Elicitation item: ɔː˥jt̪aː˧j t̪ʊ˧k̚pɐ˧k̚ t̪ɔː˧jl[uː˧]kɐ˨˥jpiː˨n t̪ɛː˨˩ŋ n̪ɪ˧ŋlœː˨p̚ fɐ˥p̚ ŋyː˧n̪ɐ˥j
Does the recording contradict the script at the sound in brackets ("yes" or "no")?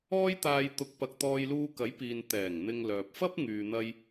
no